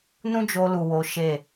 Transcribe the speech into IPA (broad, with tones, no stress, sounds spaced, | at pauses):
n ũ˦ d͡ʒ o˧ l u˨ w o˨˦ ʃ e˦˨